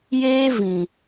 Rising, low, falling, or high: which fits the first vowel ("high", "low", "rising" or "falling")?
high